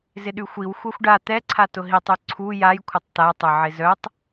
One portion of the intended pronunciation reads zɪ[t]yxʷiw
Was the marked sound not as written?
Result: yes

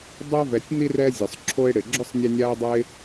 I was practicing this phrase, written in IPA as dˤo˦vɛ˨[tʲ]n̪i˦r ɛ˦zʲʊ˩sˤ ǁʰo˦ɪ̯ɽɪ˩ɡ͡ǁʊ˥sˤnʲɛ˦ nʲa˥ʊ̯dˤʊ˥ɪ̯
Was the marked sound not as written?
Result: no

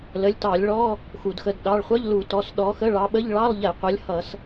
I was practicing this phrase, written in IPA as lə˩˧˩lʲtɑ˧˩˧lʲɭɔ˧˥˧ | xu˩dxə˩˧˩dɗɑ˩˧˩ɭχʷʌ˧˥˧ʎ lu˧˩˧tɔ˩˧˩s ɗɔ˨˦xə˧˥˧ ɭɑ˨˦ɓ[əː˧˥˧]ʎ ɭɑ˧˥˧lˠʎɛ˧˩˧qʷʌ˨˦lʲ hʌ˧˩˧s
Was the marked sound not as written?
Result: yes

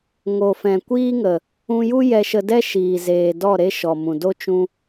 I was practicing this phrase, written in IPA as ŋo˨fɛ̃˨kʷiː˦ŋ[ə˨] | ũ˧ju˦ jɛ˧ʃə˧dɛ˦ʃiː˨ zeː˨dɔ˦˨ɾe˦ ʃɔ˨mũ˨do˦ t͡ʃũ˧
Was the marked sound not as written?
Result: no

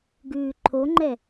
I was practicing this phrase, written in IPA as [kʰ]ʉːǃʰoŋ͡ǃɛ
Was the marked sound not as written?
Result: yes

